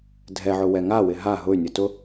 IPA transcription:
dʱɛʕʊ wɛŋawɪ ɦa ɦʊy̯nʲʊ tʊ

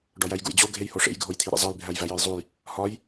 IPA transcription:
ɖɒjæjɡṵjd͡ʑo ɡʱejhoʂḛj ɡʱojt̪ʰiɾḛzˤæj bʱæjvæjɒjzˤuj | hɒj

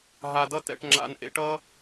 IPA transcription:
ɦa˧dʌ˥tɛ̰˧ʈ ŋ͡ǁa̰˧nʔḛ˧ʈʌ˥

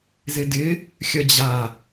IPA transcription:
zɪdɪ | xʲɐd͡ʑa

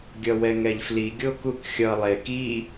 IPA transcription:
ɡʲʌwɛŋɛʎfli ɡʲokukxʲʌ lˠe ki

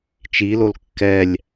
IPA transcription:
t͡ʃilol kːɛlʲ

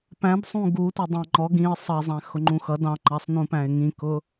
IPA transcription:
pæ̃dsˤũ ɡutʷʌ dˤæ̃ŋ͡ǃɔ ɡĩə̯ sˤʌzˤæ̃ xʊŋ͡ǃũxʌd ɑ̃ŋ͡ǃɑsˤ nũpæ̃ɪ̯ŋĩkʊ

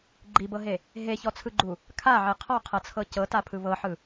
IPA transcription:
ɡ͡ǃibɤɦe | ɦeçɔt͡sʰɯɡ͡ǃu | kʰaʕe qʰɔqʰɤt͡sʰɤ cɤtapʰɯ βɤħɯ

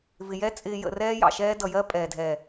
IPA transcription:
vɪ˨jɛ˦ t͡sʼɪː˨jə̰˨ rɛː˦jɑ̰˨ʃɛː˦ dʌ˨jɜ˦ pʼɛː˨dʱɛː˨

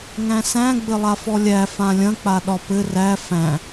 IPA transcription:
ŋæ̃sæ̃ ɡ͡bɘlˠafɔlʲæ fãlʲɐ̃ k͡paɗɒpɘ ræ fæ̃

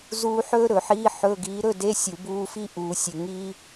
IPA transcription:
zuː˥ ħɵː˥ɾɵ˨˩˦ħiː˧˥˧ ħɵ˧˥˧ ɡiː˨˦ɾɵ˧˥˧de˧˥˧ sʲu˨˩˦buː˧˥˧fi˥ ʔuː˨˩˦sʲɵ˨ ŋiː˥

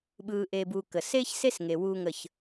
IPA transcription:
ɓɯː˧ ʔeː˧buː˧kə˨ seː˦çse˦s ŋe˧wuː˦ŋə˦˨ç

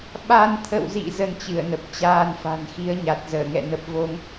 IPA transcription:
ɓa˧nt̪ʰə̰˧˨wzḭ˧˨ zə˧nt͡ɕɨ˧˩ə̯nə˨˩p̚t͡ɕaː˧n fa̤˨˩nxi˨˦ə̯ɲa˨˩t̚zəː˧˩ ŋɛ̰˧˨nə˨˩p̚vo˧ŋ

